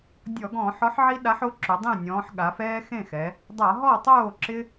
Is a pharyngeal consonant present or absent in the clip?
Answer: present